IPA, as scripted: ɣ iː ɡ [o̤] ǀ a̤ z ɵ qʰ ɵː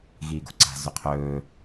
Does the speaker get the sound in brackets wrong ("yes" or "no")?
no